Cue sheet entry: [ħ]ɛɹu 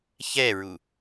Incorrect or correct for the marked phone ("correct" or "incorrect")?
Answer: incorrect